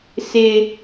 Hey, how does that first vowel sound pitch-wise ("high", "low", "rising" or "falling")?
high